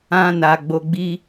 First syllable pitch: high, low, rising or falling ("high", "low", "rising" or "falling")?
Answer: high